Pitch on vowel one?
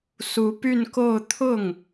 rising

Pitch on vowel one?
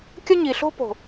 high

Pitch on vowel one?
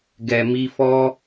low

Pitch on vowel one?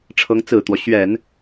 rising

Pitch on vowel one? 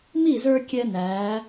falling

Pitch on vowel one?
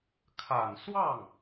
low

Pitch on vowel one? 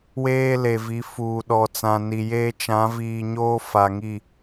high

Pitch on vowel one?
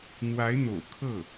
rising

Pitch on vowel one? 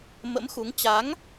rising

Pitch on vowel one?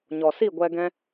low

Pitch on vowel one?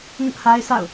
high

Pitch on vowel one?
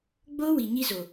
high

